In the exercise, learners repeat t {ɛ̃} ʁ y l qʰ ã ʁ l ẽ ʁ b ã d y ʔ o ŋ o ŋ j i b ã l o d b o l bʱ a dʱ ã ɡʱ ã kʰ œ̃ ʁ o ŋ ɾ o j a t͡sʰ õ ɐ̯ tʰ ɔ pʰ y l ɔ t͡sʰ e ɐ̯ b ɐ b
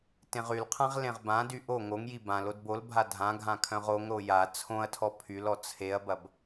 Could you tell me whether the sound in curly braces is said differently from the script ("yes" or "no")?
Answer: yes